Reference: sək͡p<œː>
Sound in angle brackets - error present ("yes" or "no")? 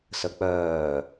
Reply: no